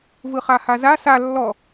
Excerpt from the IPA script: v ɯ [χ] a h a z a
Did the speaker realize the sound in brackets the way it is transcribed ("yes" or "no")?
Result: yes